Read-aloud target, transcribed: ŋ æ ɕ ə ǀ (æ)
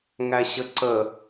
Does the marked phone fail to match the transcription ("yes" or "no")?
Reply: yes